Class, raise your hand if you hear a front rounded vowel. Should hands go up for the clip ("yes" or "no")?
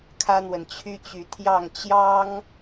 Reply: yes